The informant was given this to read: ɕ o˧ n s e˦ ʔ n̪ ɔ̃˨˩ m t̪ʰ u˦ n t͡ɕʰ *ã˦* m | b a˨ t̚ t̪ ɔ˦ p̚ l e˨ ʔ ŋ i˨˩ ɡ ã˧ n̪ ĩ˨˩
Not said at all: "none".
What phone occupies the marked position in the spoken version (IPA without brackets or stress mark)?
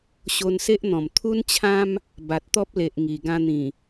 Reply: ã˦